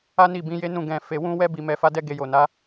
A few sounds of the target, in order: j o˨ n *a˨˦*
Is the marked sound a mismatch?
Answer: no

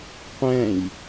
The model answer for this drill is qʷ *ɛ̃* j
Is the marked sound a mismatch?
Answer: no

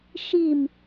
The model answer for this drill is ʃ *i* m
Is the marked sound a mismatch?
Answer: no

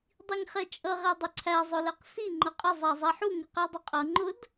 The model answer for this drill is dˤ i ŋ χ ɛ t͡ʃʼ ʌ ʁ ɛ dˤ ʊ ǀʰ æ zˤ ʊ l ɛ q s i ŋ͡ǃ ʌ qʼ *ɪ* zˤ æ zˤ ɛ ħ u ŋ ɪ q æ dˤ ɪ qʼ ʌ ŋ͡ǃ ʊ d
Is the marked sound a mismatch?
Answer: no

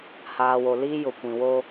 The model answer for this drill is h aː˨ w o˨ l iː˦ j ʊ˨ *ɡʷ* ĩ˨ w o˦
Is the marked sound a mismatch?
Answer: yes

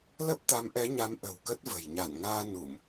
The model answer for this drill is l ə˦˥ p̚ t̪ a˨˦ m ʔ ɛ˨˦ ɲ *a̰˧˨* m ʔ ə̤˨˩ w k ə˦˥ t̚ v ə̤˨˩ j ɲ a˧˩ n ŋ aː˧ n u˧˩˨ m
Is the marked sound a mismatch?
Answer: yes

